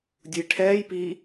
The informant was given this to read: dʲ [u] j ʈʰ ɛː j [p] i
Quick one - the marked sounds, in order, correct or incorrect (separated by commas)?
correct, correct